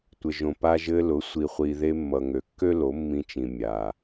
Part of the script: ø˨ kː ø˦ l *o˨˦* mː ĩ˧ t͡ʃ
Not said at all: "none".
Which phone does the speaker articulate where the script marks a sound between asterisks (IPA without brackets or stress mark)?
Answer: o˨˦